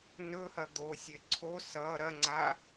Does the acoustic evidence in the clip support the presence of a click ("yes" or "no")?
yes